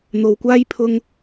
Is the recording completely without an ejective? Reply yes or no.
yes